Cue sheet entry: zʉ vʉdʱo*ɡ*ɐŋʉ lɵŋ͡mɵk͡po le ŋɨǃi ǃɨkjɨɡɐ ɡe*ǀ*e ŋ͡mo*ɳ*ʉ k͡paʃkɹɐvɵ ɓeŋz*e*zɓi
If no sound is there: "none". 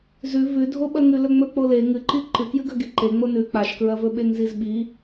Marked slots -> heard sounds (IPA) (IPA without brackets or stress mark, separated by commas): ɓ, ǃ, n, i